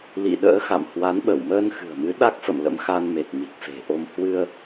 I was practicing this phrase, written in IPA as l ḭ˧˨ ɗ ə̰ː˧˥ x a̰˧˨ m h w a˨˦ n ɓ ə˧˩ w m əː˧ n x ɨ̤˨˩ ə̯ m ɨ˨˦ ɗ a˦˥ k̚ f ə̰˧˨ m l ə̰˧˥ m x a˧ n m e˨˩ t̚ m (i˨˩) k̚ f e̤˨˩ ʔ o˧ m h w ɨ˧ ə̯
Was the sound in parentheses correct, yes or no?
yes